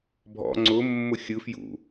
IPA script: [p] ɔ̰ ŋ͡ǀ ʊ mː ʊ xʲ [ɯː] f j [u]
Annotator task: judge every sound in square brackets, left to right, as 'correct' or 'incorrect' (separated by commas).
incorrect, incorrect, incorrect